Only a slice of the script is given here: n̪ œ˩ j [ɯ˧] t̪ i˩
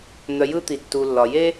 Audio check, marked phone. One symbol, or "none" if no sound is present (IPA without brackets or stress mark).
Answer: ɯ˧